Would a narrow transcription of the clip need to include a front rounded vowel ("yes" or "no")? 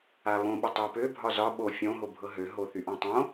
yes